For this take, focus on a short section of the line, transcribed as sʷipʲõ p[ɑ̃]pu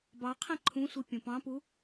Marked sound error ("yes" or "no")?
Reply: no